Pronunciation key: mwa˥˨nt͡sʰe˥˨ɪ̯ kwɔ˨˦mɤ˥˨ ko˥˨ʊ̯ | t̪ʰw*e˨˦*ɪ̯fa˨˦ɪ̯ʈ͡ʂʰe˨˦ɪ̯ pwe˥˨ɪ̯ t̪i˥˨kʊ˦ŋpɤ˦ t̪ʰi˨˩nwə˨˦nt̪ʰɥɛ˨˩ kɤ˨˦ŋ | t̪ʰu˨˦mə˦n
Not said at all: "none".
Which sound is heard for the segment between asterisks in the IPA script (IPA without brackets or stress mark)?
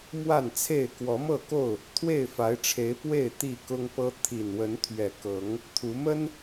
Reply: e˥˨